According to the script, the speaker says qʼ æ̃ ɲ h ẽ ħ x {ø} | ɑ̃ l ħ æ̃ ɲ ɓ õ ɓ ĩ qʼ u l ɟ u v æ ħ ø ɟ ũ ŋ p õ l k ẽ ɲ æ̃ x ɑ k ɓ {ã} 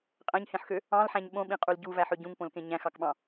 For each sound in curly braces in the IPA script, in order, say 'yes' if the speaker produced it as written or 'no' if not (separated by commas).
yes, no